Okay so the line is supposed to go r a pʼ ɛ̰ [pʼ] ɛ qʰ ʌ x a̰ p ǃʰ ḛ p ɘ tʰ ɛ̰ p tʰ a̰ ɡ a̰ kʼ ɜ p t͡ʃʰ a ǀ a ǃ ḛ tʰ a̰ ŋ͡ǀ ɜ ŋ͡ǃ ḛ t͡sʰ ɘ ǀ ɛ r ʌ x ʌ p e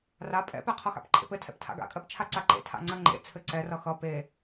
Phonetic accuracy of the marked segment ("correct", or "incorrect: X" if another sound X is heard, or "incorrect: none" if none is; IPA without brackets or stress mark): incorrect: p